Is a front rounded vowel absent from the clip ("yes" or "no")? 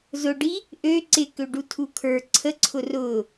no